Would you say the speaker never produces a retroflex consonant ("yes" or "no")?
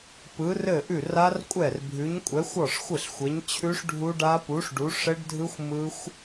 no